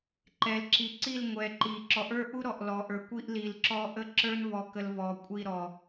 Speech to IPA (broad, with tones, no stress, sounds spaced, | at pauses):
ǃ ɛ˨ l ǁ i˨ ǀ i˦˨ l ŋʷ ɛ˨ ǃ i˨ ǁ ɔ˨ ʔ ə˞˦ ʔ u˦ ɾ ɔ˨ ʔ l ɔ˨ ʔ ə˞˨ kʷ i˦ ʔ l i˨ l ǁ ɔ˦ ʔ ə˦ ǁ ə˞˦ n v ɔ˨ k ə˨ l v ɔ˨ kʷʼ i˦˨ ɾ ɔ˨